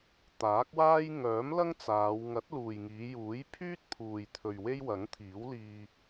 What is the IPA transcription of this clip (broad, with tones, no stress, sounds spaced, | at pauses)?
t̪ aː˨˥ k̚ w aː˥ j ŋ œː˨˥ m l ɐ˥ ŋ t͡s aː˨˧ w ŋ ɐ˨˥ t̚ l uː˨ j ŋ iː˨˧ j uː˨˥ j pʰ yː˥ t̚ pʰ uː˨ j t̪ʰ ɵ˨ ɥ w e˥ j w ɐ˨˥ ŋ t̪ʰ iː˨˥ w l iː˧